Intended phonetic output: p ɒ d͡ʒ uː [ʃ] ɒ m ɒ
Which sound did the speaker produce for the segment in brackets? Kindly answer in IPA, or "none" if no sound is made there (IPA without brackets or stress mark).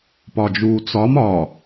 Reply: t͡s